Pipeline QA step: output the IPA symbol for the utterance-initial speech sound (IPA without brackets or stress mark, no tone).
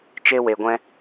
t͡ʃ